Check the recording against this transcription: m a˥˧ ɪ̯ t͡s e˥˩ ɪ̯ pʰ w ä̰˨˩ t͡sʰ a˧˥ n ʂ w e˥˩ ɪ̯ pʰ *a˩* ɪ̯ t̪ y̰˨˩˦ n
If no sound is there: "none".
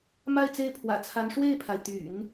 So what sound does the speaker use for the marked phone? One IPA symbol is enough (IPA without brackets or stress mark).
a˩